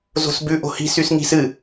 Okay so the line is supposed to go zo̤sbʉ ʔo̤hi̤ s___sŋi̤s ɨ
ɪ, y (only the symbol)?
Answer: y